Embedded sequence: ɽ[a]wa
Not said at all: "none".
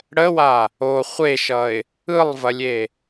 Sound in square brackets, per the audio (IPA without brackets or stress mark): ə